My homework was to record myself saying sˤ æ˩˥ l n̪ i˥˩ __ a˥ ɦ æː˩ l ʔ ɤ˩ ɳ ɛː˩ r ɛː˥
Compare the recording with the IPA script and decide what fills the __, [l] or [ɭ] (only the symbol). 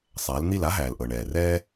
l